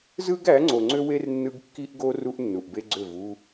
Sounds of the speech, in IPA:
z ɯ˦ ɡ æ˨˦ ŋ͡ǀ o˨ ŋ͡ǀ ø˦ w e˦ r nː ɯ˦ ɡ kː i˦ ʔ ɡ o˦ r u˦ ʔ nː u˨ ʔ b e˦ ɡ͡ǀ ø˦˨ v u˦

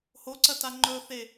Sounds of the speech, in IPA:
h o ǀ ɐ t a ŋ͡ǃ ɵ θ e

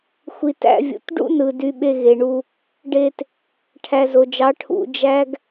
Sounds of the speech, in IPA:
xʷ i˨ t æ̰˧ vʲ ṵ˨ t ɖ ṵ˦ n ɯ˨ d y˧ ɓ e˧ ɣ e˨ ɳ u˧ | ɖ e˧ t | ʈʰ æ˨ z o˨ d͡ʒ ɑ˨˦ ʈʰ ṵ˧ d͡ʒ æ˦ ɡ

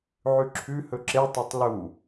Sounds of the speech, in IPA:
ʕ ʉ ǁʰ ʉ h ɵ ǁ e tˤ e tˤ l u

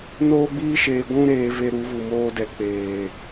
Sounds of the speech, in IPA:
n oː˦ ɡ͡b iː˦ ʃ eː˧ ɡʷ ũ˦ ɾ eː˧ v e˧ ɾ u˨˦ v u˨ m oː˧ d ɛ˨ k͡p eː˨

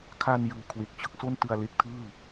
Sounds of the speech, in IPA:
kʰ a˧ n j ɯː˨˩ kʰ w e˨˩ k̚ t͡ɕ ɯ˥˩ k̚ s o˥˩ n t ɯ˧ a̯ l e˦˥ k̚ tʰ ɯː˥˩

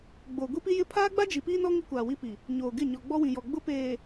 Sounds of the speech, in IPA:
ɡ͡b o˨ ɡʷ i˦ p i˦ j ɪ˦ pʰ aː˦ ɡ͡b a˦ d͡ʒ i˨ p iː˦ n ɔ˦ ŋ i˦ kʷ aː˨ w i˦ p i˨ | ɲ oː˨ ɡ ɪ˦˨ ɲ ɔ˨ ɡ͡b ɔ˦ w ĩ˨ j ɔ˨ ɡ͡b ʊ˦ p eː˨

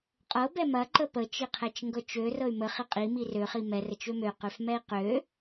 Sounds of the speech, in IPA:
qʼ ɤ b ɛ m ɐ ǃ ə p ə t͡ʃ i qʰ ɛ t͡ʃ ŋ ɡ ɤ t͡ʃ ø r ɤ y̯ m ə χ i qʼ i m i r ø χ i m ɛ r ə t͡ʃ ø m ø q ø f m ɛ i̯ q ø

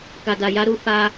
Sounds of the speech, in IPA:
k a˨ d a˨ j a˧ ɾ u˧ f a˧

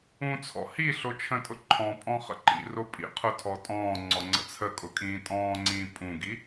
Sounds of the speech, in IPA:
ũ t͡sʰ ɔ̰ h i ɬ o t͡ʃʰ ə̃ tʼ ʊ ǃʰ ɔ̃ pʼ ɔ̃ χ ə̰ ǃ ḭ r o pʼ ḭ qʰ ʊ tʰ ɔ tʼ ɔ̃ː ŋ͡ǀ ɔ ŋ͡ǀ ə̰ t͡sʰ ə kʼ ʊ kʼ ĩː tʼ ɔ̃ː ŋ͡ǀ ĩː pʼ ũ ɡ i

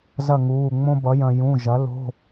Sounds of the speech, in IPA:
z ɐ˥˨ ŋ uː˩˧˩ ŋ͡m õ˥ b ʌ˩˥ j ɐ̃˧ j ũ˩˧˩ ʒ ɐ˩˥ l o̤˧˥˧

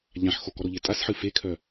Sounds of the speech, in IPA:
ʎ ã ħ x o k ɔ ɾ o ʎ e tʼ a s ħ ɨ f e kʰ œ

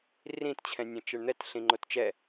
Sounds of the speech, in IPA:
r ĩ t t͡ɕʰ ɛ̃ nʲ ɛ̃ t͡ʃ ɘ ɳ n̪ ɛ t ɬ ĩ ŋ͡ǃ o t t͡ʃ ɛ

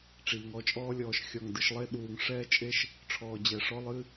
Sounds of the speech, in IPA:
ʈ͡ʂ iː˩ ŋ ɔ˦ t͡ʃʼ ɔː˦ lʲ ɔː˨ ʃ xʲ ɔ˨ ŋ d ɨ˨ ʃ lˠ e˦ ɗ uː˨ ŋ ʂ ɛː˥ t͡ʃʼ e˥ ʃ | ʈ͡ʂʰ ɔː˨ d͡ʑ ɛ˨ ʂ ɔ˥ lˠ ɨ˥

